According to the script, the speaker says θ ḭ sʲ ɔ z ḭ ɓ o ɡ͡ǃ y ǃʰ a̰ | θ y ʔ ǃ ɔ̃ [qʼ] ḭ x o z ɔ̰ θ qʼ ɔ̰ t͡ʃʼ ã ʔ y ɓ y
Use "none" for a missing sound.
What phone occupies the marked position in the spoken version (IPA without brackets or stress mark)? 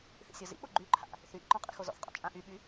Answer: qʼ